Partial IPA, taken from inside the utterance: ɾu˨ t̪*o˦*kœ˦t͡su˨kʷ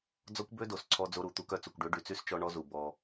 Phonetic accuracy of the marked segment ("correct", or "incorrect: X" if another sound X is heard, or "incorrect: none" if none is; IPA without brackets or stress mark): incorrect: u˦